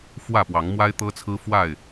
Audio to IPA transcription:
f w ä˥˨ p w ɑ˨˦ ŋ m w a˦ ɪ̯ t̪ ɤ˦ t͡sʰ ɹ̩˦ f w a˥˨ ɪ̯

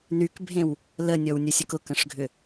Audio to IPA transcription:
n y k bʱ ẽ w | l ə nʲ ɔ w nʲ ʊ sʲ ʊ k ʊ k ə̃ ʂ ɡʱ ʏ

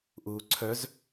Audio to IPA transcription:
ʔ uː ǀʰ œ z

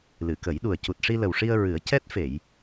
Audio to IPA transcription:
l ɨ˨˩˨ k ə˨˩˦ j ɗ u˨˩ ə̯ c u˨˩ t̚ ʂ i˧ l ə˨˩ w ʂ i˧ ə̯ ɹ ɨ˨˩˦ ə̯ c ɛ˦˥ t̚ f e˨˩˨ j

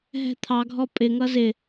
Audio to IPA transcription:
ɦ ɛ̤ t̪ʰ ɑ ɡʱ ɔ pʼ ɪ ŋ ʌ z ɪ

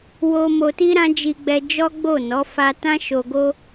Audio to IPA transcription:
w o˧ m o˧ t i˦ ɾ ã˦ d͡ʒ i˧ ɡ͡b ɛ˧ d͡ʒ ɔ˦ ɡ͡b o˦˨ n ɔ˨˦ f a˧ t ã˦ ʃ o˧ ɡ o˦

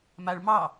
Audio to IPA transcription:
m a ɭ m ɑ

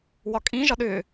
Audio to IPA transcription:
w ɒ kʼ ĩ ʒ ɒ ɗ ʏː

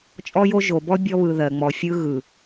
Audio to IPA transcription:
t͡ʃʼ ɔ˦ j o˦ ʒ o˨ b ɔ˦ bʲ ɔ˦ β ɯ˨ ð ɜ˨ ŋ͡m ɔ˨ fʲ ɯ˦ ɣ ɯ˨

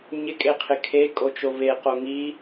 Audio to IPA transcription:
ɲ ɪ kʼ e qʰ ɪ kʰ e kʼ o t͡ʃ o v e q o ŋ i

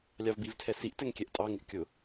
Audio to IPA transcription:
lʲ ɑ v b i v tʰ ɛ s i ʔ t ɛ ŋ kʲ ɛ ʔ tʼ ɑ ŋ ɪ ʔ kʲ ʊ

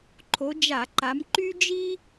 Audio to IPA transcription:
ǃʰ o˨˦ d͡ʒ a˧˩˧ ǃ a˨˦ m ǃ y˥ d͡ʒ i˥

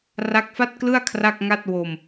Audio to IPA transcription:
r a˦˥ k̚ f a˥˩ t̚ k l ɯ˥˩ a̯ kʰ r a˥˩ k̚ ŋ a˥˩ t̚ w o˧ m

